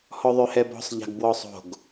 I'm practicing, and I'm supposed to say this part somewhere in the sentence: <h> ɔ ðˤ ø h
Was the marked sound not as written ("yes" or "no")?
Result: no